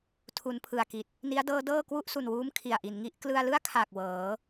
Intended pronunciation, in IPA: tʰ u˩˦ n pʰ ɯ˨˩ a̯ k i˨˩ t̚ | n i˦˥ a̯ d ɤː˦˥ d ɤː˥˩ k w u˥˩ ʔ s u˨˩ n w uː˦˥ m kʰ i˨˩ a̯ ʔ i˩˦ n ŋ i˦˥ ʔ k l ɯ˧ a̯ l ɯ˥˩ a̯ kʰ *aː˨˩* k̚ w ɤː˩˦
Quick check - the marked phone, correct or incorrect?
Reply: correct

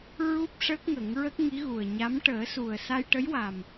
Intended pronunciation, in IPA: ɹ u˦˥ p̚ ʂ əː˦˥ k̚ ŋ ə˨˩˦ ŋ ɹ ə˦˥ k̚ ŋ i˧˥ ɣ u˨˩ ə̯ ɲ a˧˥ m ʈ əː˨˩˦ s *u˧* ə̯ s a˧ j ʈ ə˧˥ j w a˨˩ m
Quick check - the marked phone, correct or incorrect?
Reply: incorrect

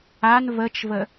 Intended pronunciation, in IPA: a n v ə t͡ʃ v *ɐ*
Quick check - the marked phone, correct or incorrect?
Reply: incorrect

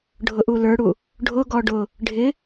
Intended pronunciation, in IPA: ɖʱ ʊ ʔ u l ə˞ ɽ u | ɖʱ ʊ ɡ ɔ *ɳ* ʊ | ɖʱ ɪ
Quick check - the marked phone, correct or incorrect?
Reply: incorrect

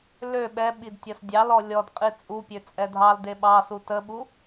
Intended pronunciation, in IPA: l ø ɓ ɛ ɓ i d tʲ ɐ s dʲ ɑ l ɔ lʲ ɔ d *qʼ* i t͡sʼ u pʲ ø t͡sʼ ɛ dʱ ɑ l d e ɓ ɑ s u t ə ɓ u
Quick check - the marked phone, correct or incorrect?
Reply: correct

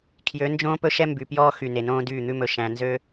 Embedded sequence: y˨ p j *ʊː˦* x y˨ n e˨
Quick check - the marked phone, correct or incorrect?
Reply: incorrect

